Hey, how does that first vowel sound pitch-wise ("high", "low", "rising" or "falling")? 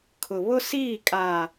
low